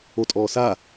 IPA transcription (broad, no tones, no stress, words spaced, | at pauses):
otʼɔːsa